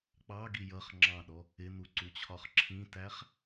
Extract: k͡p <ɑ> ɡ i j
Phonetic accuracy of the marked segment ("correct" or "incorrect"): correct